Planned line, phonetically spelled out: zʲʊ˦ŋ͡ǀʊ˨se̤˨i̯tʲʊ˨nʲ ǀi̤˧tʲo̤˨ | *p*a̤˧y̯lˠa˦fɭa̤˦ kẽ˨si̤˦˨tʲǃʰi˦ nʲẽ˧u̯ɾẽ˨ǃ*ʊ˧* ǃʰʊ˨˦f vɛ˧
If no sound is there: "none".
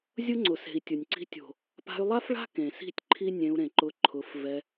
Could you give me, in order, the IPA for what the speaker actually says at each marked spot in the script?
p, ʊ˧

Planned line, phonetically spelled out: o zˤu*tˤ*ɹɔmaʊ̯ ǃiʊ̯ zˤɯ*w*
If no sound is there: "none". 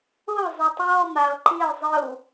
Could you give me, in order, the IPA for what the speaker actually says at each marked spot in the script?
tˤ, w

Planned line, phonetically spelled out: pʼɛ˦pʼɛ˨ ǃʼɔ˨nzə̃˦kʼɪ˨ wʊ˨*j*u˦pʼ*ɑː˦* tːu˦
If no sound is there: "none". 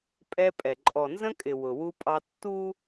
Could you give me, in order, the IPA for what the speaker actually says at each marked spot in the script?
w, ɑ˦

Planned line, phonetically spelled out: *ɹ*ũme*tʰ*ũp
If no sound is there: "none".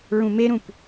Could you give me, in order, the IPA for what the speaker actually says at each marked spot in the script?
ɹ, ɾ

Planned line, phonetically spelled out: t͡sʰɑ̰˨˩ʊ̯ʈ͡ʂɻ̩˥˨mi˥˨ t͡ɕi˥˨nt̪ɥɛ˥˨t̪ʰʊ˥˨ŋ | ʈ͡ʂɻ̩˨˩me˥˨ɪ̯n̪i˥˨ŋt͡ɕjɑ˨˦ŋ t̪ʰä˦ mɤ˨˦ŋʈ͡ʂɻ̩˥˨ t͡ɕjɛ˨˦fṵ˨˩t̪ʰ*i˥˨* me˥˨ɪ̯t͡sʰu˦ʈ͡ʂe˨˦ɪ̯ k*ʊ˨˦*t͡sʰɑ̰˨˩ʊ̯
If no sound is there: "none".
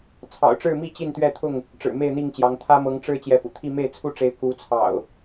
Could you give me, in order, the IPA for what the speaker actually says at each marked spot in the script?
i˥˨, u˨˦

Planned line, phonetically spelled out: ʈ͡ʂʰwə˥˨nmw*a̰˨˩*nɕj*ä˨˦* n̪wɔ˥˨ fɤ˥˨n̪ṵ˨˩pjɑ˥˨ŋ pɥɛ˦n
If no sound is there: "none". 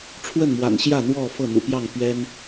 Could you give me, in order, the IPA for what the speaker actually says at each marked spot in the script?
a̰˨˩, ä˥˨

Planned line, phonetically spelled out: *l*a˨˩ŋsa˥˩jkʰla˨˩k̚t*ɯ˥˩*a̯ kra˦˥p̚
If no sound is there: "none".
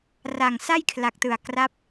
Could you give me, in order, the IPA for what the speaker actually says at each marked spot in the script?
r, ɯ˨˩

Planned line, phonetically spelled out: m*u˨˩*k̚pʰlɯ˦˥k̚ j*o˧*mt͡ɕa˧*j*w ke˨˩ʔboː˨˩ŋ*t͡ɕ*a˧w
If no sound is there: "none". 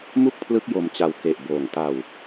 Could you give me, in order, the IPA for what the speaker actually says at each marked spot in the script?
u˥˩, o˧, none, t

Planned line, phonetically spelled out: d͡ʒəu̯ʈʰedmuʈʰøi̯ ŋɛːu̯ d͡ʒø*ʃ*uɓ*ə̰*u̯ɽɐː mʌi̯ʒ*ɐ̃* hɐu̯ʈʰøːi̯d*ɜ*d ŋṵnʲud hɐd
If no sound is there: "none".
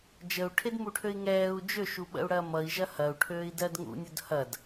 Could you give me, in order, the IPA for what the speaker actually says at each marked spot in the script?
ʃ, ə̰, ɐ, ɜ

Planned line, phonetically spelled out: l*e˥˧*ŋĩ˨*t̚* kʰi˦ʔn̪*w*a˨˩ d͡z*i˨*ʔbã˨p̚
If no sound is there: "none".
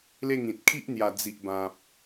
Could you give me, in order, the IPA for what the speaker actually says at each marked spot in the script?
e˥˧, t̚, j, i˨

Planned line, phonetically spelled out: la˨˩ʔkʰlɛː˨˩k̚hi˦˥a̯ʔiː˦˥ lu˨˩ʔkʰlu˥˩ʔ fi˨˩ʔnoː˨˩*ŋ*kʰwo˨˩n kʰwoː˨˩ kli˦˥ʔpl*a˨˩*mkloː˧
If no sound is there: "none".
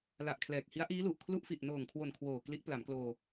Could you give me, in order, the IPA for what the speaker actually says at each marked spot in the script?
ŋ, a˩˦

